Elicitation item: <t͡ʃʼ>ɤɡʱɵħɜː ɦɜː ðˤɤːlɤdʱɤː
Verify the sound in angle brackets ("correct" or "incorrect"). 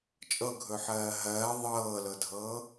correct